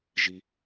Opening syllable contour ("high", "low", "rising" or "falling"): low